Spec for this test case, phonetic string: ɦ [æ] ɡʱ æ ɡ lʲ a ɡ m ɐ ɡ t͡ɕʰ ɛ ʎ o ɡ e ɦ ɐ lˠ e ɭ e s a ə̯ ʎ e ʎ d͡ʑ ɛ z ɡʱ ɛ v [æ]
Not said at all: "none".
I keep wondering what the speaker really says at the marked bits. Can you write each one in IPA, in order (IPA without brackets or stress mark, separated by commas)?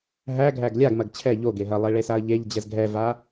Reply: æ, a